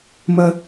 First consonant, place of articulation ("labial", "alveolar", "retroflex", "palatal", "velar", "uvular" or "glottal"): labial